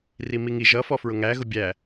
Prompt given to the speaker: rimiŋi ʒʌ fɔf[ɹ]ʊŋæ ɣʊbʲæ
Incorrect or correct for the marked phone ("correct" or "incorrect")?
correct